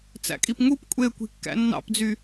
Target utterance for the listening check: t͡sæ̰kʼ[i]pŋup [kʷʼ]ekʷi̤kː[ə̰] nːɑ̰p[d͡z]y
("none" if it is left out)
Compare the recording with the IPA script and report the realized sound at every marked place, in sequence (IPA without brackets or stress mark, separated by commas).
i, kʷʼ, æ̰, d͡z